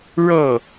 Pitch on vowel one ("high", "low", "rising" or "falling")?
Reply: falling